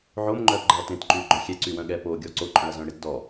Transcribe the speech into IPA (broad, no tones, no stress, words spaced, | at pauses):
ʕomŋ͡ǃœːpɡ͡ǃɛɐ̯ tẽtǃyːɡ͡ǃœ xʲɛǀywœ̃ ɠɛpoːɡʲɔ ǀoǃʼœ̃ɐ̯zœ̃ɽet dɔ